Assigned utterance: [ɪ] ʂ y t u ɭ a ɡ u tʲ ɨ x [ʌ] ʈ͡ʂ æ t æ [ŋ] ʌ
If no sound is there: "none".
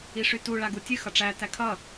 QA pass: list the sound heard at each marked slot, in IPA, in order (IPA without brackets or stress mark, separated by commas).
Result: i, ʌ, kʰ